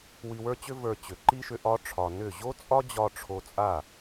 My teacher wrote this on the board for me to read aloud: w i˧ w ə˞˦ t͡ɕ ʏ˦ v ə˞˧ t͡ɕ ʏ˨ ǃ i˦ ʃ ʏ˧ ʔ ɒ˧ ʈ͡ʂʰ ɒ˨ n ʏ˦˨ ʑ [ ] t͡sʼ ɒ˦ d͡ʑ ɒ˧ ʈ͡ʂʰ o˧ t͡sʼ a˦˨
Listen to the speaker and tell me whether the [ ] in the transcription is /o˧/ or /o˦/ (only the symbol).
o˦